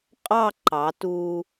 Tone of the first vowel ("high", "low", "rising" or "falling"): falling